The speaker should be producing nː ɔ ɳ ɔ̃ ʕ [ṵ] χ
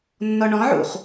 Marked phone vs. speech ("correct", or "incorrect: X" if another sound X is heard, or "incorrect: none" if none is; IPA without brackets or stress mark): correct